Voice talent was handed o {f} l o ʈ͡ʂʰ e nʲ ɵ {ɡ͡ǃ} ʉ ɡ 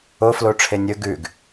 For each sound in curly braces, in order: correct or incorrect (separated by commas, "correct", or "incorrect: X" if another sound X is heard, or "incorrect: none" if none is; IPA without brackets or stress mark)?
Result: correct, incorrect: ɡ